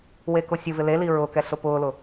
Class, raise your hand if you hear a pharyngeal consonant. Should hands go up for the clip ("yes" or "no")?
no